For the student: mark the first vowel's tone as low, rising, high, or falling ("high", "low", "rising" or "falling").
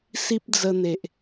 high